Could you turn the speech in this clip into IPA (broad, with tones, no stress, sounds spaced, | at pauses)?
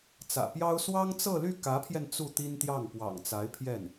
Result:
t͡s ä̰˨˩ p j ɑ˥ ʊ̯ s w ɑ˥ ŋ t͡s ɤ˥˧ l y˥˩ k ä˧˥ pʰ j ɛ˧ n t͡s u˥˩ t̪ i˥ n t̪ j ɑ˥˩ ŋ p w ɑ̰˨˩ ŋ t͡s a˧˥ ɪ̯ pʰ j ɛ˥˩ n